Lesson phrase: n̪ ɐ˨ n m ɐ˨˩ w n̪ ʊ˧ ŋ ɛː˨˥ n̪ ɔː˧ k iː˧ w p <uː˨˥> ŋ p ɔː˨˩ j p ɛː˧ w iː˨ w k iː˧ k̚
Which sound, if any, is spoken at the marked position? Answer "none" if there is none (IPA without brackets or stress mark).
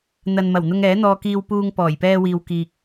uː˧